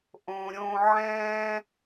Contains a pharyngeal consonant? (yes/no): yes